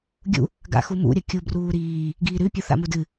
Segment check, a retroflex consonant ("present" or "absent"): absent